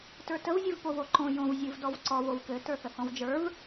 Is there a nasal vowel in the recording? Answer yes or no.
yes